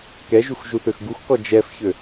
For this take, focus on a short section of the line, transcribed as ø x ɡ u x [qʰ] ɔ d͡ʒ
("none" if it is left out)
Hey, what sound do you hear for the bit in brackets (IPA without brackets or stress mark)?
k